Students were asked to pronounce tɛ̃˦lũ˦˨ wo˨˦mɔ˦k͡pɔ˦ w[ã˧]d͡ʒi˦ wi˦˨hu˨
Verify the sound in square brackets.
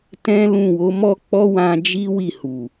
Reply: correct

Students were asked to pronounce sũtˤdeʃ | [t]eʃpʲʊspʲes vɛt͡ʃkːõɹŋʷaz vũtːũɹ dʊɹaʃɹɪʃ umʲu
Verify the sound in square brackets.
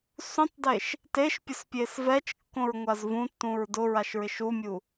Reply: correct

